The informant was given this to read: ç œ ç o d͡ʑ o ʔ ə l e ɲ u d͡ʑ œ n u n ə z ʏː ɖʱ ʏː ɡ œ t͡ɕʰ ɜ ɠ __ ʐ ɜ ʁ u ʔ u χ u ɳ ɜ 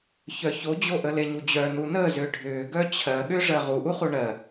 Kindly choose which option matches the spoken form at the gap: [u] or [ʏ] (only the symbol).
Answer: ʏ